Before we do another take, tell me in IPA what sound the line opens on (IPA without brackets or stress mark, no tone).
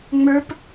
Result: ŋ͡m